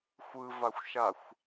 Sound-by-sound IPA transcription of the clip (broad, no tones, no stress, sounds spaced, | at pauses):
xʷ ɯ v a xʷ ʃ a xʷ